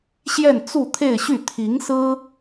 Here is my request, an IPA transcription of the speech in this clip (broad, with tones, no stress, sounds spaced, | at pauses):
ɕ j ɛ˥˧ n t͡s u˥˧ t̪ʰ e˥˧ ɪ̯ ɕ y˥˩ t̪ʰ i˧˥ ŋ s ɹ̩˥